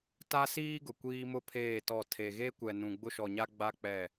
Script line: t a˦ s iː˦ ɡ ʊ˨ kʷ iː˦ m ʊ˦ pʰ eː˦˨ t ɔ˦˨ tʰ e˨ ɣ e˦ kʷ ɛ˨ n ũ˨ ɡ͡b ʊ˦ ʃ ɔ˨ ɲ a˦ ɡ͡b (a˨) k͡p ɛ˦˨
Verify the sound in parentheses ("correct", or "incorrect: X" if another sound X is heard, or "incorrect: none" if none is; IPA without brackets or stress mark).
incorrect: a˦